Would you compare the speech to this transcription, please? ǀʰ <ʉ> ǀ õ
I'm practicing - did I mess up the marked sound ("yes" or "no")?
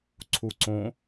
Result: yes